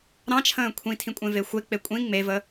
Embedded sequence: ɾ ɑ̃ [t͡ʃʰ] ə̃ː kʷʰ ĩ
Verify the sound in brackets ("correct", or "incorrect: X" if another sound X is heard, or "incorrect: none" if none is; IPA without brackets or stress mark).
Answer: correct